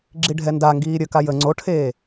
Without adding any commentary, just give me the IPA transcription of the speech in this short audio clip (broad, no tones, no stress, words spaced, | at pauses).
ɡ͡ǁiɖʱɛndaŋɡiː ɾʲəka jə ŋ͡ǀoʈʰeː